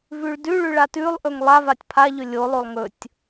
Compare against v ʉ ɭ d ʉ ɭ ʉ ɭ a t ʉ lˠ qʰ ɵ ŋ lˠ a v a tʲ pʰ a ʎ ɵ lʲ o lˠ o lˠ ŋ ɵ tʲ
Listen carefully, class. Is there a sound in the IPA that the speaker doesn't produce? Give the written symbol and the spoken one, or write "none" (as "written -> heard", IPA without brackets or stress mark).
qʰ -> ʔ